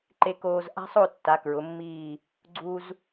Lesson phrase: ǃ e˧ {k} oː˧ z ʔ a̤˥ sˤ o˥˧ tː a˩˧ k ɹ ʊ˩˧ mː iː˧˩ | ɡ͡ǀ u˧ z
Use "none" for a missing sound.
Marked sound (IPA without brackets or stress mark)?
k